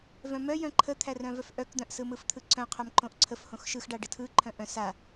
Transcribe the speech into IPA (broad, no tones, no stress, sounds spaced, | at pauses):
v œ̃ m œ j œ̃ ǃʰ ə t̪ʰ æ r œ̃ v œ f ʔ œ k d̪ œ̃ ʔ s ɯ m ɯ f t̪ʰ ɯ ǀ œ̃ qʰ œ m ǃ õ ʔ ǀʰ ə f h õ x ʃ ɯ x ɖ a ɖ ɯ tʰ ɯ ǃʰ œ̃ ʔ œ̃ s a